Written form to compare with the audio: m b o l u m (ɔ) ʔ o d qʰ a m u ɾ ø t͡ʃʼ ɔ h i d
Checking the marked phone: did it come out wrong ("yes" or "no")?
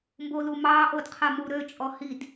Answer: yes